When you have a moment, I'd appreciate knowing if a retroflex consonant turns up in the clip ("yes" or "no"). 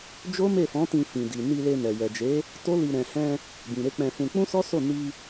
no